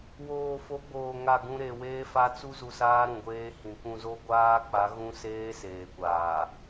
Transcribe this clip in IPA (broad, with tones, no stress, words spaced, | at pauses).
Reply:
woː˨fo˨˦ ɡ͡boː˨ ŋa˦˨ɡũ˦ ɾe˨ weː˦fa˦ t͡su˦zu˨saː˦ ɾũ˨ɡʷeː˦hĩ˨ kʷũ˨zo˦ɡʷaː˦ k͡pa˨˦ɣũ˦seː˦ seː˨kʷaː˨